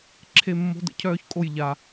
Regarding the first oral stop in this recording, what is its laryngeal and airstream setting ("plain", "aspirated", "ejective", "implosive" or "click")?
click